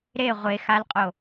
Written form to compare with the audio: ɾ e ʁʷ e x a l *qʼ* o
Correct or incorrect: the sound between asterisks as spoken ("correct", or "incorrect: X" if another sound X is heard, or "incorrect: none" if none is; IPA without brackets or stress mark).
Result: correct